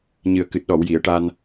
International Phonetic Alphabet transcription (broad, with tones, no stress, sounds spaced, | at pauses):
ɲ ɨ˨˩ ə̯ k ɨ˨˩ t̚ ɗ ɔ˨˩˨ w j i˨˩˨ ə̯ ʈ aː˧ n